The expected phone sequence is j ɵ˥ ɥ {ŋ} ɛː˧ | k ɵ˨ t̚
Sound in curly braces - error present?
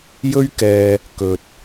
yes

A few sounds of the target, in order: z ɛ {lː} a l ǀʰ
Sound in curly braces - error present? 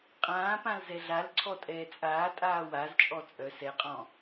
yes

